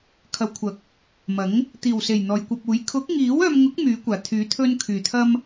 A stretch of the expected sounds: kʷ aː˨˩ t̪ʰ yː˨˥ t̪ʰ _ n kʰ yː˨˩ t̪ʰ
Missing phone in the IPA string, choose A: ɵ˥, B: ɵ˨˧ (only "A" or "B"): A